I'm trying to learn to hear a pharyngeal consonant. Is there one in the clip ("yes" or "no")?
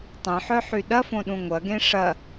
yes